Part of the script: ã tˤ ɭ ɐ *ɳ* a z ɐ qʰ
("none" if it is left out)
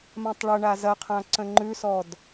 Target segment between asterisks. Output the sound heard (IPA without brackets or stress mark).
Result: ɳ